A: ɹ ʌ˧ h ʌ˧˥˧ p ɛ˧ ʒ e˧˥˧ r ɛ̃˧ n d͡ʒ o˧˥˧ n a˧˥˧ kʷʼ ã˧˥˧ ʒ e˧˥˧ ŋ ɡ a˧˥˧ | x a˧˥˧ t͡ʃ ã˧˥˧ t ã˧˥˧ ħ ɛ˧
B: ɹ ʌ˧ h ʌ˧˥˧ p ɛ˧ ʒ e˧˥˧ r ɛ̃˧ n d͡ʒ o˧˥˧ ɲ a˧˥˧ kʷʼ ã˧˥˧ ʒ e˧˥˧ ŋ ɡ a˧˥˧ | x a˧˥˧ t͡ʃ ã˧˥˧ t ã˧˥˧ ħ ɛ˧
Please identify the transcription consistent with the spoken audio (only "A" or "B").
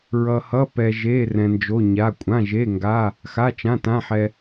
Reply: B